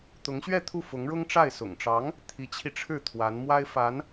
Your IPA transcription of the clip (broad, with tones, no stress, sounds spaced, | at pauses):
t̪ ʊ˧˥ ŋ ɕ ɥ ɛ˥˧ t̪ʰ u˥˩ f ʊ˧˥ ŋ ɻ ʊ˥ ŋ ʈ͡ʂ a˥˩ ɪ̯ s ʊ̰˨˩ ŋ ʈ͡ʂ ɑ˧˥ ŋ | t̪ʰ i˧˥ t͡ɕʰ i˧ ʈ͡ʂʰ ɻ̩˥˩ t̪ʰ w a˧˥ n m w a˥ ɪ̯ f a˧˥ n